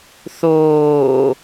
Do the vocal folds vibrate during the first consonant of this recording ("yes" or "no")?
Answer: no